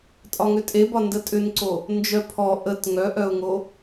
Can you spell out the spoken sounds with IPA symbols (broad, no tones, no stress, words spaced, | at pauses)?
tʼɒŋʏtʼebɒ ndətʼʏnǀo | nd͡ʒœpʰɔ ʔət ŋœʔœʊ̯ŋo